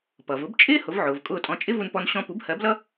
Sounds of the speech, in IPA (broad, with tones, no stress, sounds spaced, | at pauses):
p ʌ˩ v ʊ˩˥ b t͡ʃʼ ɪː˥ h ʊ˩˥ v ʕ ʊː˩ v kʼ ʊː˥˩ tʼ ɔ̃˧ t͡ʃʼ ɪ˥ v u˧ n p ɔ˧ n ɕ ɔ̃˧ p u˩˥ b h ɜ˩˥ b l ʌ˥